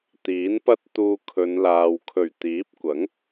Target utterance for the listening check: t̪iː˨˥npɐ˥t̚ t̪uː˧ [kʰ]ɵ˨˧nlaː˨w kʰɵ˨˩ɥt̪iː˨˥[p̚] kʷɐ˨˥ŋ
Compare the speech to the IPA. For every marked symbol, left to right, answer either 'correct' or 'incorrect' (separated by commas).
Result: correct, correct